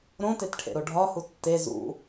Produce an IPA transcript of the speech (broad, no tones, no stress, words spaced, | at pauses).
ɾõtetʈʰḛɾo ɖʱɒhu tːe zṵ